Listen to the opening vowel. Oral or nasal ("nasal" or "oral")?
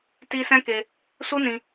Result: oral